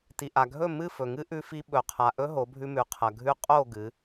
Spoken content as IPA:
t i˨ ʔ a˨ ɡʱ ɵ˦˨ m ɨ˦˨ f ɵ˨ ŋ ɨ˦ ʔ ʉ˧ f i˧ ɓ ɵ˨ qʰ a˨ ʔ ɵ˦ ɦ o˨˦ bʱ ʉ˧ m ʉ˨ qʰ ɐ˨ ɡʱ ʉ˦ qʼ o˦˨ ɡ ɨ˨˦

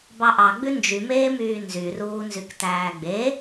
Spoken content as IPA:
b ɑ ʔ ɑ ɡ͡b ʉ n d͡ʒ y m eː m yː n z y r uː n z y k t æː ɡ͡b e

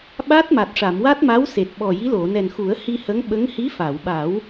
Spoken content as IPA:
ɓ a˦˥ t̚ m a˨˩ t̚ ʂ a˨˩˨ m w a˦˥ t̚ m a˧˥ w s e˨˩ t̚ ɓ ɔ˨˩ j i˧˥ l o˨˩˨ n ɛ˨˩ n x u˨˩˦ ə̯ h i˧ h ə˧˥ ŋ ɓ ə˧˥ ŋ h i˧˥ f a˨˩˨ w ɓ a˨˩˦ w

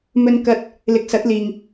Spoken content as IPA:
m ɵ˧ n k ɐ˧ t̚ | l ɪ˨ k̚ s ɐ˨˥ t̚ l iː˨ ŋ

